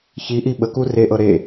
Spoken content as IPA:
çiʔi ɓəku reʔɤ ɾe

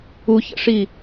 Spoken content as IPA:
uçə̰ʂi

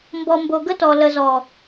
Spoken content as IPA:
mbɔ˨mbo˨ ɡə˦tɔ˨ lə˨zɔ˨

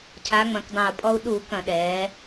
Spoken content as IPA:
cʰa˩˧ŋ͡mɐ̃˨˩kdˤɐ̃˨˩u̯ pʼɔ˧u̯ɗu˧˩˧kɐ̃˧˩˧ ɗɛː˩˧

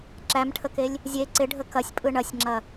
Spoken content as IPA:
ǁæmʈʰəkelʲ | zʲe ǀɪɖʱə kɐsʲpʼɯ ɳɐsʲŋ͡ǁɐ

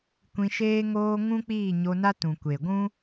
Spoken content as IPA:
kʷĩ˧ʃeː˦ŋoː˦ ŋũ˦k͡piː˦˨ ɲo˧na˦tũ˨ kʷe˨ ɡʷũ˦

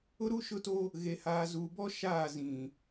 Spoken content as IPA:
ʊ˦ɾu˦ ʃʊ˦to˦ | ɣe˨haː˨zuː˨bɔ˦ ʃaː˦˨zĩ˨

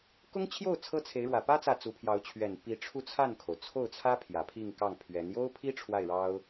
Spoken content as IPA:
kʊ˥ŋt͡ɕʰjo˥˩ʊ̯ t͡sʰɤ˥t͡sʰe˧˥ɪ̯ɻwä˨˩ pä˥ t͡sä˥˩ t͡su˧˥pʰjɑ˧˥ʊ̯t͡ɕʰɥɛ˨˩n pi˧˥ʈ͡ʂʰu˥˧t͡sʰa˥˩nkʰo˩ʊ̯ t͡sʰo˥˩ʊ̯t͡sʰä˥ pʰjä˨˩pʰi˥˧ŋkɑ˥˩ŋpʰɥɛ˧˥n jo˥ʊ̯pʰi˥ ʈ͡ʂʰwa˥˩ɪ̯ɻɑ˥ʊ̯

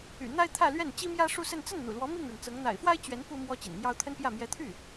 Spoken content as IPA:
y̰˨˩n̪a˥ɪ̯t̪ʰä˥˧lɥɛ˥˩n t͡ɕi˥mjä˥ʂu˥˧sə˥˧n t͡sə˥˩nn̪ṵ˨˩lwɔ˧˥ mi˥˩ŋɻə˩nt͡sɤ˧˥ŋ n̪a̰˨˩ɪ̯fwa˥ɪ̯t͡ɕɥɛ˧˥n pu˥mwɔ˥ t͡ɕḭ˨˩nmjɑ˥ʊ̯ t̪ʰə˥npjä˥˩ mjɛ˧˥t̪ʰy˥˩

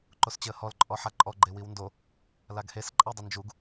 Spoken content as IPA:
ǃost͡ɕɪə̯hɔl ǃʼɔħaǃʼɔ ɡ͡ǃewiwndo | laɡhes ǃʼadˤʊnd͡ʒuɡ

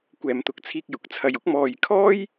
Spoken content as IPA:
kʷɛː˨mt̪ʊ˨k̚t͡sʰiː˧k̚ jʊ˨k̚t͡sʰɐ˧jʊ˥k̚ mɔː˨jkʰɔː˥j

